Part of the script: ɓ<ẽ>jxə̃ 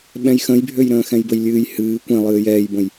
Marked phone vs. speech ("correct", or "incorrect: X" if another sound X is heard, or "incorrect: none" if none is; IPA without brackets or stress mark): incorrect: ɛ̃